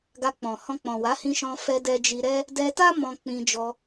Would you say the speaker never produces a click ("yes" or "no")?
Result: yes